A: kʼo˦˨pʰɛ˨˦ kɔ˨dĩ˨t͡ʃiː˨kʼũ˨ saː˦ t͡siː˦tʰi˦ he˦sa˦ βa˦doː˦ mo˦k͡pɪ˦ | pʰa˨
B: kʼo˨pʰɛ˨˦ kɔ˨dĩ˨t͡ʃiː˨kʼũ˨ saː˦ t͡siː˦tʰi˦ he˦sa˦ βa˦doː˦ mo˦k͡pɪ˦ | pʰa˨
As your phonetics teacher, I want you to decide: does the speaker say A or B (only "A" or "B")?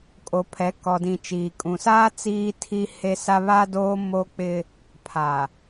B